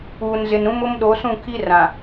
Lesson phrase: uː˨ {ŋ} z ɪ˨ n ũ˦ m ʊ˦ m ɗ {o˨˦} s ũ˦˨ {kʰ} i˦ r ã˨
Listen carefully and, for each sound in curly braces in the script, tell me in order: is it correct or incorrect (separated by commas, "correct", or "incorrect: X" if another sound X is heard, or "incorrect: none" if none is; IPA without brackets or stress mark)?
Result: incorrect: n, correct, correct